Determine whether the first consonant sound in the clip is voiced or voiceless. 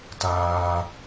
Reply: voiceless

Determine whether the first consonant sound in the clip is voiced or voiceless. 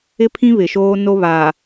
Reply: voiceless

